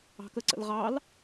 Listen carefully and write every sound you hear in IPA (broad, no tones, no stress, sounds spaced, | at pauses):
ɑ̤ k ə ǀ ə̰ l ʁ ɑ l